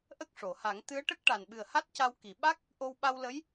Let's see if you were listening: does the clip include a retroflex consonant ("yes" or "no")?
yes